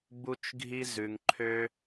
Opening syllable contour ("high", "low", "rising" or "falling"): high